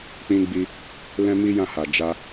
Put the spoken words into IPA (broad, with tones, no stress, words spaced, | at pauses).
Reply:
k͡pĩ˧ ɡ͡bi˧ | lɛ̃˦mi˦jã˦˨ha˨ d͡ʒa˧